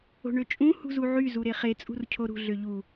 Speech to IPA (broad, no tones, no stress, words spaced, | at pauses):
o̤ɳøt͡ʃʼũ hṳzuʕy zuɾeχe t͡sʼṳrcʰoɾṳ ɮøʎu